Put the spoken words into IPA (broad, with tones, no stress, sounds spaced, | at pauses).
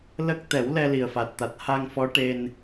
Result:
l ə˦˥ k̚ t̪ ɛ˨˩˦ w l ɛ˧ l i˨˩ ə̯ f a˨˩ t̚ t̪ a˨˩ t̚ h a˧ ŋ f ɔ˧˥ ʈ e˧ n